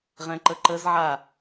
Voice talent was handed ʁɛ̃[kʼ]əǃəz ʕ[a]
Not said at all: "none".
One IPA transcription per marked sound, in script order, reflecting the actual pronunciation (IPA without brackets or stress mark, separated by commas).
ǃ, a